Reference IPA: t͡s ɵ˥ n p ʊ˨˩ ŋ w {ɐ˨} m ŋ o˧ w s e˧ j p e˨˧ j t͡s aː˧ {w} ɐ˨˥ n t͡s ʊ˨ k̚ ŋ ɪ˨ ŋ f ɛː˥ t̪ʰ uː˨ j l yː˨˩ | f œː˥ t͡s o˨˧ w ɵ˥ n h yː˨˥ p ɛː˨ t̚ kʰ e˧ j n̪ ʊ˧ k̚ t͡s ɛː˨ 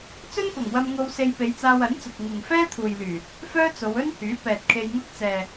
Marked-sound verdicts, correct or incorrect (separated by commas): incorrect, correct